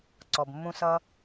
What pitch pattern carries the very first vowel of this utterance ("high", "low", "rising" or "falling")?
low